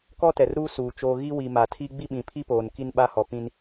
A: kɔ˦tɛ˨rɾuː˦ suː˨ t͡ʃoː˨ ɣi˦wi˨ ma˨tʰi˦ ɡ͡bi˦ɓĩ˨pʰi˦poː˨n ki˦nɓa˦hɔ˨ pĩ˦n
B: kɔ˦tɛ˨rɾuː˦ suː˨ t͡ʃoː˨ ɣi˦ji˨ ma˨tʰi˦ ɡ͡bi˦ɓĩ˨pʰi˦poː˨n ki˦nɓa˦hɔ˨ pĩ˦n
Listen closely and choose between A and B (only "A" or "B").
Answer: A